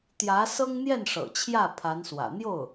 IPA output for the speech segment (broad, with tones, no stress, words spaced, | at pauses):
t̪jä˧˥ sɤ˥ŋn̪jɛ˥˩n ʂɤ̰˨˩t͡ɕʰjä˥˩ pʰa˧˥nswä̰˨˩ n̪jo˥˩ʊ̯